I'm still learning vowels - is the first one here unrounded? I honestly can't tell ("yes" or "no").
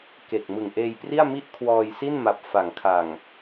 yes